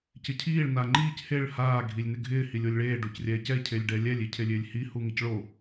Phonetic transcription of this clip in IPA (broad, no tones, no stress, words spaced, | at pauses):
cɪcʰiːɭ naŋ͡ǃiːc heɭ haː ɡʱilʲnɪɡʱɪː hilʲolʲɭeː ɖocrʲɛːcɛ cʰelʲɖɛlʲɛlʲ icʰelʲɪːlʲhi huŋɪcɭo